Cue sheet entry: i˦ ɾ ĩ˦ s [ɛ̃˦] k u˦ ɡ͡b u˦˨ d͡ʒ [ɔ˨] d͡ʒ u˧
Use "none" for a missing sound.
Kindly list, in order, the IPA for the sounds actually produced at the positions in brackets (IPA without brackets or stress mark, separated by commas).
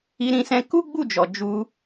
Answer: ɛ̃˦, ɔ˨